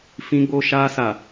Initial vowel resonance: nasal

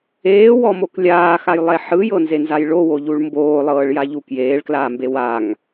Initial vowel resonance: oral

